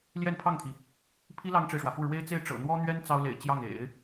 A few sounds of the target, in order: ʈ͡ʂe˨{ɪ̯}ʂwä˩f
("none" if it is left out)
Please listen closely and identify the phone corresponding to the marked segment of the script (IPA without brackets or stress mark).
ɪ̯